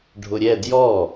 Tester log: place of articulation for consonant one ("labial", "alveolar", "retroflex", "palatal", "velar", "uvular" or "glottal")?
retroflex